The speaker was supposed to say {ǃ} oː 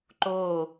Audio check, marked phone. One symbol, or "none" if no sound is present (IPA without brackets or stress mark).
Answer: ǃ